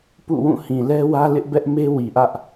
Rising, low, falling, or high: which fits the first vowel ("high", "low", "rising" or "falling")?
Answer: falling